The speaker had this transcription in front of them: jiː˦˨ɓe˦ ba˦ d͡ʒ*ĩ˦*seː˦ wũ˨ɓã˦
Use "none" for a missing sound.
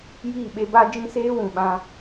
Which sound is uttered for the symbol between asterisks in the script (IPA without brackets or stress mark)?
ĩ˦